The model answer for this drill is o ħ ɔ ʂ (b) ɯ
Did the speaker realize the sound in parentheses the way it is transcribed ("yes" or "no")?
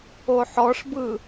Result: yes